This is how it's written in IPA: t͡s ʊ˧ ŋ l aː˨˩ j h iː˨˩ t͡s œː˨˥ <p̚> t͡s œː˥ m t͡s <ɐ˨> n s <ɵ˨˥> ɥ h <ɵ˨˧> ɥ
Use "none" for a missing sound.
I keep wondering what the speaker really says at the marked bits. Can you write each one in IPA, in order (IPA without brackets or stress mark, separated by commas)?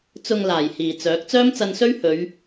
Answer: k̚, ɐ˧, ɵ˥, ɵ˨˧